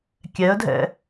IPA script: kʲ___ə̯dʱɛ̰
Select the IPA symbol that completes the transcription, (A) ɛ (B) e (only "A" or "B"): A